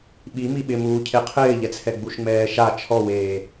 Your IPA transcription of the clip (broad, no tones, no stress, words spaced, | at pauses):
ɓi miɓɪmuː cʰeqʰɪːʎɛt͡sʰɛ ɡ͡buʃŋ͡mɛːʃa t͡ʃʰɔweː